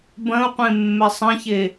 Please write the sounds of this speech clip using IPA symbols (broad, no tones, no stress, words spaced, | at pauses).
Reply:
bɐ̃u̯qʷẽmːɛ sˤɐ̃çe